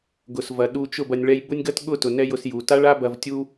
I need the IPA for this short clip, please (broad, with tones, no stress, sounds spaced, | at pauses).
ɡ ʊ˨ s v ɐ˨ ɗ u˧ t͡ʃ ʊ˦˨ b ɐ˧ nʲ ɭ ɛ˦ j b ʊ˦ nʲ ɡ ɐ˦ t ɠ ʊ˦˨ t ʊ˨ n ɛ˧ j ʊ˧ s j u˨ t a˦ ɭ a˦ b ɐ˧ v tʲ u˦